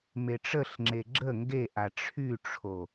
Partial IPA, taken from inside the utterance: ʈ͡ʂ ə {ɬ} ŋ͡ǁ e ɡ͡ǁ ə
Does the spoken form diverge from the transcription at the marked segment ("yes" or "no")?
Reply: no